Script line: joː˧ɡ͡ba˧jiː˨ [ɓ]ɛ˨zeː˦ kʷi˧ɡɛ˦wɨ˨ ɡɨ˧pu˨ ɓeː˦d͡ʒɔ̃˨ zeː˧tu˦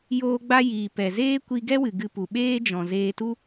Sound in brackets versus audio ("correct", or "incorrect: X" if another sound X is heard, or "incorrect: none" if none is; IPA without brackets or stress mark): incorrect: p